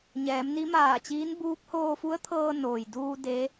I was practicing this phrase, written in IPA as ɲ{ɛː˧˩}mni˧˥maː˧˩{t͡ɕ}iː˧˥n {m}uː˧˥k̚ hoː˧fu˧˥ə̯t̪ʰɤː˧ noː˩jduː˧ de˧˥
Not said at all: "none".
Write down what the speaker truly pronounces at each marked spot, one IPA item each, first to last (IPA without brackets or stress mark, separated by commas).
ɛː˩˧, t͡ɕ, b